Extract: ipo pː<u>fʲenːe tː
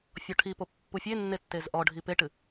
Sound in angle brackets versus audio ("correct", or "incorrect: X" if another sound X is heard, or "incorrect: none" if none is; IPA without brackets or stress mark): correct